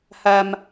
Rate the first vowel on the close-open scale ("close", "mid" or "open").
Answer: open